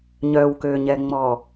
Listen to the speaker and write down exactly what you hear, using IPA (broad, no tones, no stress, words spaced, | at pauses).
ɲœwkøɲɛŋ͡mɔ